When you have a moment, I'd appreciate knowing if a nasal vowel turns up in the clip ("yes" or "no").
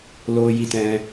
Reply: yes